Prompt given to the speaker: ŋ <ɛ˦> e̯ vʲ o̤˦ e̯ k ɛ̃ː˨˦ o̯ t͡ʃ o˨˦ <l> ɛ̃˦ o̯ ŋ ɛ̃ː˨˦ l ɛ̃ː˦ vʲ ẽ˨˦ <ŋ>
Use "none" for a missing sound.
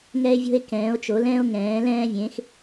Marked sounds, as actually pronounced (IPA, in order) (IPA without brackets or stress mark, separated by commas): ɛ˦, l, x